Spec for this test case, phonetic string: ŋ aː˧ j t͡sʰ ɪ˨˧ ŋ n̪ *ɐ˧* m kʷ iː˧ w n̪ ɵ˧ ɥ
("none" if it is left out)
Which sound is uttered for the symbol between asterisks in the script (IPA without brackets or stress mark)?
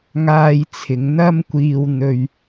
ɐ˥